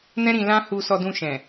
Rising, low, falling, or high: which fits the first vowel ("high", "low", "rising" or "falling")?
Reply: high